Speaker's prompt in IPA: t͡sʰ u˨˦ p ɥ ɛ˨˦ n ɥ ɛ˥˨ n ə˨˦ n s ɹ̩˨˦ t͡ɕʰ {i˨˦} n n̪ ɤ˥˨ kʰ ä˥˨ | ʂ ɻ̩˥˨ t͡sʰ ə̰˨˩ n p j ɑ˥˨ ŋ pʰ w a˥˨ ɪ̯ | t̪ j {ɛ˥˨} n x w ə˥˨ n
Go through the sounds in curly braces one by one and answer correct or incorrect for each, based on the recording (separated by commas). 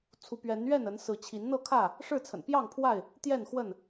correct, correct